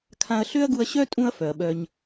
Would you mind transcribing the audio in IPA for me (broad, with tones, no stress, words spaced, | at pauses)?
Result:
kʰã˧ɐ̯ ɬø˦ɐ̯ɡu˧ɐ̯ɕœ˦ tʼũ˦ɐ̯ fœ˨ɐ̯ɓœ˧ɲ